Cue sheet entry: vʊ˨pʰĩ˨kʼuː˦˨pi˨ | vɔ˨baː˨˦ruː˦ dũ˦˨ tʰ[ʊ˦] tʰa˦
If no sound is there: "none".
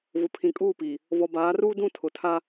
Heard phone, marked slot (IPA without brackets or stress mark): ʊ˨